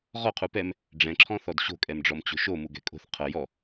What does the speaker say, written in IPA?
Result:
ʁɔqʰu pɛm | ɖ͡ʐɛ̃ǁʰɔ̃θɔd ɕo̤kʼɛmɖ͡ʐɔm t͡ɕo̤ʃo muɡɛ̤kʼo̤θ qʰɤ jɔ

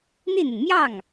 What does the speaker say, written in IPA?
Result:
n̪i˥˩n̪i˩n mjɑ˥˩ŋ

